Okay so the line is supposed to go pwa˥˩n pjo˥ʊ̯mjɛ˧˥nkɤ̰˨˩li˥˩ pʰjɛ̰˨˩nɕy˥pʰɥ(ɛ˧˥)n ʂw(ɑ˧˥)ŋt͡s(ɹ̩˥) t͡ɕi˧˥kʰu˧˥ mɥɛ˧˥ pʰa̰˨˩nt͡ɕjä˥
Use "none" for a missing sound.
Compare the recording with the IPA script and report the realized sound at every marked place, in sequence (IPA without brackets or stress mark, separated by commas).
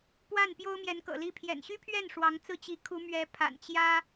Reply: ɛ˥˩, ɑ˧˥, ɹ̩˥˩